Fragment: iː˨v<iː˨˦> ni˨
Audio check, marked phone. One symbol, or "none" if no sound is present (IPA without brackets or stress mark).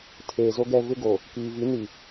i˨˦